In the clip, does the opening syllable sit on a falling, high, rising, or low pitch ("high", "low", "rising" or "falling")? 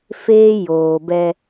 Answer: high